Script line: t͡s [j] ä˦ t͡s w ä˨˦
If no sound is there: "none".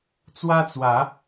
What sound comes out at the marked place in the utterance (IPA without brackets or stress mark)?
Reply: w